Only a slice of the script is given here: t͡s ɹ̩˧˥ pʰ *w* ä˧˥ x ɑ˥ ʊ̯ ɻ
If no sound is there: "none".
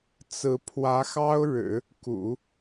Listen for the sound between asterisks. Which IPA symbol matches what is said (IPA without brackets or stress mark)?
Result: w